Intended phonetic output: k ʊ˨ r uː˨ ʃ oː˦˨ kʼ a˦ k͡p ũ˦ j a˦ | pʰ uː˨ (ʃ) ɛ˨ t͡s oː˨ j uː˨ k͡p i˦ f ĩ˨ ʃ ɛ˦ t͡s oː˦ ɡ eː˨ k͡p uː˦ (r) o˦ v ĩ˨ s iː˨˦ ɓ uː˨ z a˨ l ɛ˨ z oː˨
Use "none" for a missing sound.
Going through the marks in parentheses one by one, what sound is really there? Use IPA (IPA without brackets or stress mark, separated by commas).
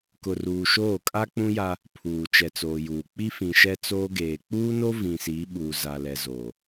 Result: t͡ʃ, n